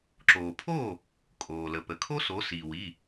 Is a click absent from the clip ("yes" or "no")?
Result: no